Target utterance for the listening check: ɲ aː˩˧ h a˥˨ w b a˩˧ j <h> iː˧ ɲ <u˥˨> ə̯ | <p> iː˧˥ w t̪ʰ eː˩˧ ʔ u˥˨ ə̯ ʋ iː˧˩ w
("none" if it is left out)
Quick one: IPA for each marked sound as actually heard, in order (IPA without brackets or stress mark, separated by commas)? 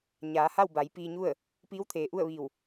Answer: p, u˥˨, p